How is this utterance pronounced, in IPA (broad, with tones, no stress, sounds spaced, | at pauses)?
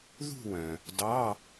ð ṳ˥˧ w œ̃˩ | d ɑ˧˥˧